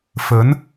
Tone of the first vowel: rising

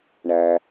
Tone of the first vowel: low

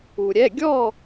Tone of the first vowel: low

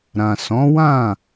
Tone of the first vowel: low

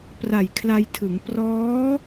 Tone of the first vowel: low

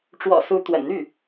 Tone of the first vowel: low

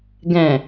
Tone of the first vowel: low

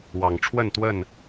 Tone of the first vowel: low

